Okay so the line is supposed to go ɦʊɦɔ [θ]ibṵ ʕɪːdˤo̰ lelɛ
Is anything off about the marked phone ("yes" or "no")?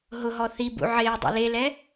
no